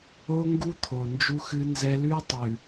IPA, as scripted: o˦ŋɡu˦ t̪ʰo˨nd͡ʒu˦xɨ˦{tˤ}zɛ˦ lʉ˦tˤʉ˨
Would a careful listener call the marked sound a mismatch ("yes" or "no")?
yes